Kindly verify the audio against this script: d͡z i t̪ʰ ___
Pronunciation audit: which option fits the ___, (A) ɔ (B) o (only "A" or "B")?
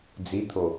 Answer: B